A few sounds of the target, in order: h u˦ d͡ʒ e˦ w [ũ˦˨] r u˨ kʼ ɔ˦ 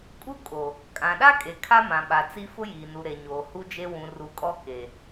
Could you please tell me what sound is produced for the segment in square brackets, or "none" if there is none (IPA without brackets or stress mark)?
ũ˨